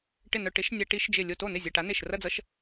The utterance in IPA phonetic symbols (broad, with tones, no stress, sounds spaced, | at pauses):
ʈ ɪ˧˩ n œ˧˩ ʈ ɪ˧˥ ʃ nʲ a˧ ʈ i˧˥ ʃ d͡ʒ ɪ˧˩ lʲ o˧˩ t o˥˩ n ɪ˥˩ zʲ ɐ˧˩ ʈ a˧˥ n e˧˩ ʃ r ɐ˥˧ d͡z ʌ˧˥ ʃ